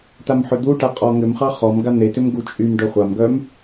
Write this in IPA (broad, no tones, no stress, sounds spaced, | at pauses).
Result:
t a m ħ ʏ d̪ u ʈ a qʼ ɔ ŋ ʏ m χ ɑ χ ɔ m ɡ a n̪ e t ʏ m ɡ u t͡ʃʼ y m ɖ œ χʷ a m ɡ œ m